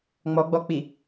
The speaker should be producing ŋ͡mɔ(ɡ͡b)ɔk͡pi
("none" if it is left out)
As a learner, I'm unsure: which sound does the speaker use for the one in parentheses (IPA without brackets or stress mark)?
ɡ͡b